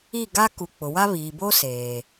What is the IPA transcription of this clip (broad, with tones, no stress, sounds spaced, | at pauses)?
i˦˨ ɡ a˦ k u˨ k͡p ʊ˨ w a˦ β iː˨ b o˦ s eː˨